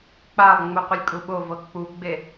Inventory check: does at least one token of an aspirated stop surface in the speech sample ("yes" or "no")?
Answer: no